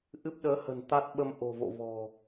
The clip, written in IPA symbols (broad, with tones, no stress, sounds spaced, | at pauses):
ʔ ɨ˦˥ p̚ ɗ əː˨˦ h ə̤˨˩ n t̪ a˦˥ t̚ ɓ ə˧ m ʔ o̤˨˩ v o̰˧˨ v ɔ̤˨˩